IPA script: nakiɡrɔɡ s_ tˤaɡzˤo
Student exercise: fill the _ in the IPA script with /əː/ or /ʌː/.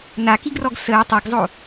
əː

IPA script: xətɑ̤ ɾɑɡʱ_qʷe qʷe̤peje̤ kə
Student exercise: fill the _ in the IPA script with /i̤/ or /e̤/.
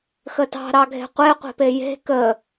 e̤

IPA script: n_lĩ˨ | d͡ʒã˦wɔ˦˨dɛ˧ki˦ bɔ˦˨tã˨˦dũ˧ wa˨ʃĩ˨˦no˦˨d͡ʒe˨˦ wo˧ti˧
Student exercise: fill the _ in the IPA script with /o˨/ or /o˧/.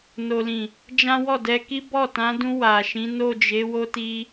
o˨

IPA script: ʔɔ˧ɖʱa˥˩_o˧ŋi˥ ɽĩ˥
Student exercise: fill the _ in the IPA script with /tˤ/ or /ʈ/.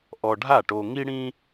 ʈ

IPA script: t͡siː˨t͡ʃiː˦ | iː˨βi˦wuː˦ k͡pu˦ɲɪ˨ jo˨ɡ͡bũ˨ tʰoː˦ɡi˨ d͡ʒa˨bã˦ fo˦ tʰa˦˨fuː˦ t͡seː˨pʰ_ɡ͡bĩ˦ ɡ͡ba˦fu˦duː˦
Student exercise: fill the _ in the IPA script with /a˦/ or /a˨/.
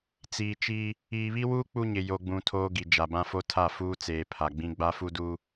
a˨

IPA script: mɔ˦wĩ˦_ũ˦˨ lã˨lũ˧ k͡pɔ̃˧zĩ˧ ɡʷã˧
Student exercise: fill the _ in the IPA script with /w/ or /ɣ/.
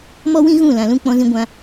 ɣ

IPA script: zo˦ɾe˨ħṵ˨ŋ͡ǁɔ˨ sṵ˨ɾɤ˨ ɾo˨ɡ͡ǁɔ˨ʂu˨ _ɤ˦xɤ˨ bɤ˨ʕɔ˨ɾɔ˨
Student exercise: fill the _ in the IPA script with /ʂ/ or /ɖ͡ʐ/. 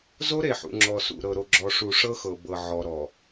ʂ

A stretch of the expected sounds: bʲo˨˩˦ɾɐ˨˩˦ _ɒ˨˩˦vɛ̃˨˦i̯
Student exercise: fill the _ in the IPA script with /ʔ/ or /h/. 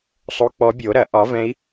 ʔ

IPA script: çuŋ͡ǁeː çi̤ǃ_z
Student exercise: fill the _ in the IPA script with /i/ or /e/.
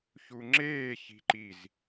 i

